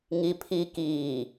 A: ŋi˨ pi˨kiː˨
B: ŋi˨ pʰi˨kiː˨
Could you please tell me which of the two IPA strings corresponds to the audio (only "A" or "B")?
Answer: B